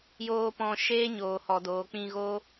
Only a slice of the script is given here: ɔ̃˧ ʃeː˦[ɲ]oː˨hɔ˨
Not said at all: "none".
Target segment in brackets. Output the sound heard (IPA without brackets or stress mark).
ɲ